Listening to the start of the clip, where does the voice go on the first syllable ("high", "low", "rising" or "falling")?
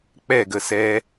falling